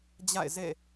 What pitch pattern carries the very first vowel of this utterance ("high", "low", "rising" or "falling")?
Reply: falling